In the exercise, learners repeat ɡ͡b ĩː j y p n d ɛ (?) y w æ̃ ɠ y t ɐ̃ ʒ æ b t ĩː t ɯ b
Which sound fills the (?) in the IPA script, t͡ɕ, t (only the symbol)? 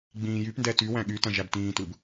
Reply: t